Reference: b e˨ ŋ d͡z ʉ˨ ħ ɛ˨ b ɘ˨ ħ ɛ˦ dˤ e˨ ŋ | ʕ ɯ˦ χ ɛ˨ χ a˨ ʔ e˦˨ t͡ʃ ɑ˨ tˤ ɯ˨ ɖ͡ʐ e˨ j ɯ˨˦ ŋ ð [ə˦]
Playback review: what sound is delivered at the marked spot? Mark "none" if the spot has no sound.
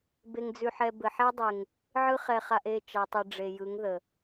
ə˨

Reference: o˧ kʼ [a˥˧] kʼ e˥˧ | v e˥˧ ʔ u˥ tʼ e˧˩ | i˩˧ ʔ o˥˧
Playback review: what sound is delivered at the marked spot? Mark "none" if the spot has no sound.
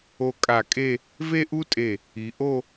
a˧˩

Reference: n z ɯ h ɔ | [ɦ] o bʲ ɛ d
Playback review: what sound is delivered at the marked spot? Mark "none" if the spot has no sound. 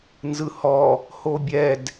h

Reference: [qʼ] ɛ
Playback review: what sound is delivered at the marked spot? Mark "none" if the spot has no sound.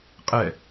qʼ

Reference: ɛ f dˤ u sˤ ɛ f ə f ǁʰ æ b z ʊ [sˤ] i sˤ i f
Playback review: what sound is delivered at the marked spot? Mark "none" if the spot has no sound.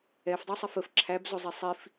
zˤ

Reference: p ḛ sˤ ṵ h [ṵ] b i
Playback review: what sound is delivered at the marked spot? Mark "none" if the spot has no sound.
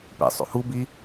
u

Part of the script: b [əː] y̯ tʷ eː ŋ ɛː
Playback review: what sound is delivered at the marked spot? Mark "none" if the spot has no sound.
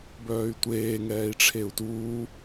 œː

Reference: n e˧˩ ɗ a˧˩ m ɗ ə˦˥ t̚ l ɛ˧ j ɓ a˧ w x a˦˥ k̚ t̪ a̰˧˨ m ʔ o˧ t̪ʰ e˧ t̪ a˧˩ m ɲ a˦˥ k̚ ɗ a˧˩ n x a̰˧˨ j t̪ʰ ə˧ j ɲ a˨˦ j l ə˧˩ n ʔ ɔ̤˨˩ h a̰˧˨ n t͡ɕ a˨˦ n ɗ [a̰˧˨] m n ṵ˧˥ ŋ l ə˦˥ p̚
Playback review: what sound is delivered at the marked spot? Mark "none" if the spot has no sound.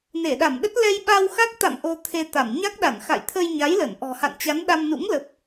a˧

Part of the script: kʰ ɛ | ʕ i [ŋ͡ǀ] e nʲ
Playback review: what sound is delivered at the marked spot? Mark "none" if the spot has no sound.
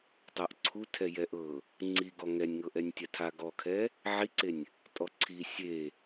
ǀ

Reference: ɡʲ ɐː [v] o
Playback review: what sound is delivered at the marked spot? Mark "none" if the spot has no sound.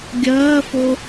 f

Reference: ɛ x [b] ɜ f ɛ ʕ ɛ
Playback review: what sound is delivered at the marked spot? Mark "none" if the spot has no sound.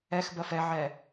b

